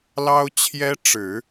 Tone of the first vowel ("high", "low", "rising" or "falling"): high